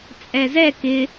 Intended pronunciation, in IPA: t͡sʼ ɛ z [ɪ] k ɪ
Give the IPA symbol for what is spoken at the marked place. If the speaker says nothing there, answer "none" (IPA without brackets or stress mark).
ɛ